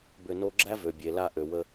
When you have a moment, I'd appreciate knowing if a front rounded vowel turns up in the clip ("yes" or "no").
yes